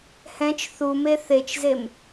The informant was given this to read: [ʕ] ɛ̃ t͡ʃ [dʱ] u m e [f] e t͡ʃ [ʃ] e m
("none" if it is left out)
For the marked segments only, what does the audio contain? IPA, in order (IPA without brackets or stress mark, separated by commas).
h, θ, θ, z